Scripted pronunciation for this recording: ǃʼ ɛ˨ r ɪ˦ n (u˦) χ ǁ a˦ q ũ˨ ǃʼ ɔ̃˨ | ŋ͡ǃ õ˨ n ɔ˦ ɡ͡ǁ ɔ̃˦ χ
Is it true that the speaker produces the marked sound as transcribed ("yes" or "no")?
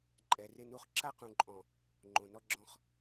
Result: yes